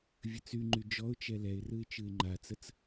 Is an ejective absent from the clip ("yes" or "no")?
yes